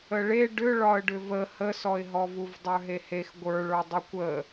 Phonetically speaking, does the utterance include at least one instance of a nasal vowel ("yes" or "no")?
no